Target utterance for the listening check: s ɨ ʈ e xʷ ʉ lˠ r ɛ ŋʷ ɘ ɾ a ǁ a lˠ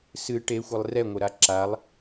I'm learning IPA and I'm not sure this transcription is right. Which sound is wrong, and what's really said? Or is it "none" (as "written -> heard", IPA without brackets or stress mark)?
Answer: ʉ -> ɨ